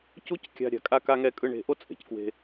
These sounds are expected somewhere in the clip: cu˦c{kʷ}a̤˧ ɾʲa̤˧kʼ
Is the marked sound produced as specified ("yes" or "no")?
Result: no